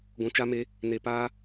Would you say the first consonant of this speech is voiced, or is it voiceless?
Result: voiced